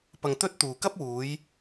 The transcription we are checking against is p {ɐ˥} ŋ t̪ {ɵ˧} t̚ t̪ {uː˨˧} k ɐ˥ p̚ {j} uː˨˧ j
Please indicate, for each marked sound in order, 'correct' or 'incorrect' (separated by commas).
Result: incorrect, incorrect, incorrect, incorrect